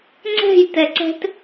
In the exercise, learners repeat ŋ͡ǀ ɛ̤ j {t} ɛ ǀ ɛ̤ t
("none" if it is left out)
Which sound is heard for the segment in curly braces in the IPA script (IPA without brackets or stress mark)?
t